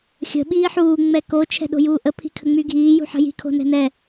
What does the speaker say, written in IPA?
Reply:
xʲə̤ ɓiːħuː ŋ͡mɛko t͡ʃʰɛ̤ɗo̤juːʔə pʰi̤kʰəŋ͡myɡʱiː jṳħə̤ji̤ kʰo̤nɛ̤nɛ

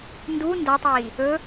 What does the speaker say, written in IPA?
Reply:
ndu ndatˤiː | ɵ

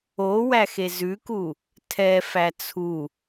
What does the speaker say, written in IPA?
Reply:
owæxe zʉku | tʰɛfæ t͡sʰu

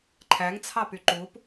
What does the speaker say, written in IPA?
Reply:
ǃʰæŋt͡sʰɑpy ǃup

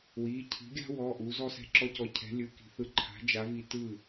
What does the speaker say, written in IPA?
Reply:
wi˩˧˩cʰi̤˨˥ɡʲa̤˥ wɔ˩˧˩ ʔu˨˥zɔ˥sɛ̤˥˩ ǁɔ˥cɔ˧ cʰɛ̤˨˥lʲɯ˩˧˩ki̤˧ θɯ˧ǃʰa̤˨˥ d͡ʒa˨˥vi˧ tɯ˥˩

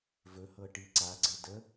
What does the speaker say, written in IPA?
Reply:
vɵhɤʈi ǀaɡ͡ǀɘ də

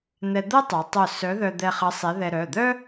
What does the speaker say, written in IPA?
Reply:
n̪ɛ˧d̪ə˥ tˤœ˨˥tˤœ˥˨ sœ˨˥ðœ˧ d̪ɛ˧χə˨˥ sˤe˨˥ðɛ˧ ɾœ˩˧˩d̪œ˥

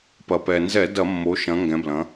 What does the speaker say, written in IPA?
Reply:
pɐ˩pɛ˩nzɛ˧˩˧ dɐ˧˩˧mːo˩˧ʃɐ̃˩˧ ŋɡɛ̃˩˧blɐ̃˩˧

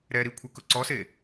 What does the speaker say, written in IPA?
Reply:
ɾɛ ɾikʷʰɪkʊ ǀɔse

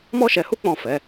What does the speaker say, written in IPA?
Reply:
mɔ˦ʃɛ˧hu˦ k͡pɔ̃˦˨fɛ˨˦

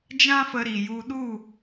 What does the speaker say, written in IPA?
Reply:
d͡ʒã˦fə˧ɾi˨ju˧ ɗu˦˨

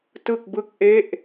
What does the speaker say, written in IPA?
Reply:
tɯ˥˩k̚bɯ˥˩k̚ʔe˥˩ʔ

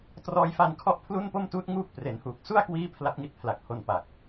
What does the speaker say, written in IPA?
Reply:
trɔː˧jfa˧nkʰɔ˥˩ʔ pʰlu˥˩npo˥˩mtuː˦˥t̚ ŋuː˥˩k̚pre˩˦nhuː˨˩k̚ su˥˩a̯kwiː˦˥ pʰla˦˥p̚ŋi˦˥t̚pʰla˨˩k̚ho˧n pa˨˩k̚

